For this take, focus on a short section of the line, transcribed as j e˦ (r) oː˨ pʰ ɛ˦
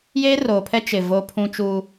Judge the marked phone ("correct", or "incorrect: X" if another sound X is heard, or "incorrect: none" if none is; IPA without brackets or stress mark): correct